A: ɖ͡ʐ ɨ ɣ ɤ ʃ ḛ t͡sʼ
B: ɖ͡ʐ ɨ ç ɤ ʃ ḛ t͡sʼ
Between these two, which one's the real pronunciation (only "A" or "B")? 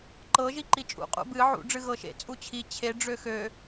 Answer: A